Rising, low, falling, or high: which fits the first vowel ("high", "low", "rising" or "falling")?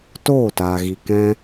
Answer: falling